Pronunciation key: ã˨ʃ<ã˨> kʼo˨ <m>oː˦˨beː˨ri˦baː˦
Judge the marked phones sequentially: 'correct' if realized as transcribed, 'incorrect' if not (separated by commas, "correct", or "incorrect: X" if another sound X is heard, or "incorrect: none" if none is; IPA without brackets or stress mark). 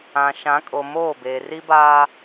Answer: incorrect: ã˨˦, correct